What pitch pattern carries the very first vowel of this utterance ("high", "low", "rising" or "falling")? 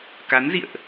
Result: rising